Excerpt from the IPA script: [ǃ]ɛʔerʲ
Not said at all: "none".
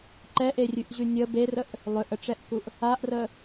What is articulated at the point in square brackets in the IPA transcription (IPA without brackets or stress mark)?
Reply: ǃ